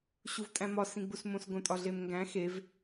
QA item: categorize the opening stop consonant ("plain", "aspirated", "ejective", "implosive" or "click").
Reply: ejective